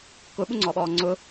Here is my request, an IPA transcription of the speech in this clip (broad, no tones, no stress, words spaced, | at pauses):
kʊɓuŋ͡ǀɔɓɔː ŋ͡ǀʊ